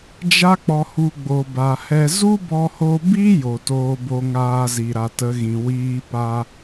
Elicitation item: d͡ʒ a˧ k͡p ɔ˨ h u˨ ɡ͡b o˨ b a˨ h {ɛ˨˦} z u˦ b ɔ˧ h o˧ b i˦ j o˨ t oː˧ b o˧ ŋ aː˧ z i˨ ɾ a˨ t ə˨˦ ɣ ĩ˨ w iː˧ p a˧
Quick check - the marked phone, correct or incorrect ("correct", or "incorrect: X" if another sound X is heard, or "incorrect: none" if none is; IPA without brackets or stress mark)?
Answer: incorrect: ɛ˧